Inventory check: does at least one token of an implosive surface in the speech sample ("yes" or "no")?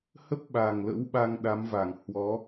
yes